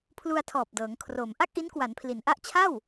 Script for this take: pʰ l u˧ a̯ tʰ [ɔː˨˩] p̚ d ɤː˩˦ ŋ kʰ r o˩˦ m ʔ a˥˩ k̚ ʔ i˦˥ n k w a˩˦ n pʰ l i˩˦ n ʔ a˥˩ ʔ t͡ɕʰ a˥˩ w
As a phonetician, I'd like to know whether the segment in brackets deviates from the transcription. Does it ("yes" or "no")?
no